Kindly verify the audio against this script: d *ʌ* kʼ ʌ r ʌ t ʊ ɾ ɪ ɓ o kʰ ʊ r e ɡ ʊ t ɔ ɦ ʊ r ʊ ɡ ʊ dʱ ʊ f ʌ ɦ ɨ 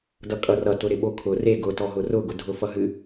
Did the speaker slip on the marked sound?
no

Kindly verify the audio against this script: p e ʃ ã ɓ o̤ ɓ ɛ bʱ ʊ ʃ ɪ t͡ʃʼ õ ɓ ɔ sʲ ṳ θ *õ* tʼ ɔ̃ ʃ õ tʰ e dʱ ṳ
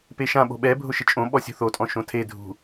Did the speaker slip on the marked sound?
yes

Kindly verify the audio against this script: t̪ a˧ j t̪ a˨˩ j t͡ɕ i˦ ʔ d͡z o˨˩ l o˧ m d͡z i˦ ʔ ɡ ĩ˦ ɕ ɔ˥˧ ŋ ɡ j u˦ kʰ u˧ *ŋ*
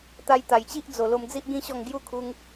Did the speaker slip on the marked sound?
no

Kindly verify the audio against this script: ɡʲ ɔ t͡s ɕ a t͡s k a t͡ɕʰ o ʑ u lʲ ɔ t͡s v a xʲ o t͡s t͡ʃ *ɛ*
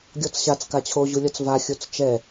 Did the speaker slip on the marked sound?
no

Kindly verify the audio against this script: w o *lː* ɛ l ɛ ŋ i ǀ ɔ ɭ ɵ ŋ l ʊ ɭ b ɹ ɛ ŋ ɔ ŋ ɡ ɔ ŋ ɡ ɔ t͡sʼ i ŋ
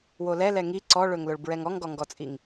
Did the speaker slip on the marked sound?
yes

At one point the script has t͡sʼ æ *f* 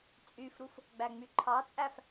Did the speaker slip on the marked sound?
no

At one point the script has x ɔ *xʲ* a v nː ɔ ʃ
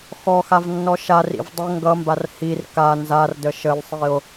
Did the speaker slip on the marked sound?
yes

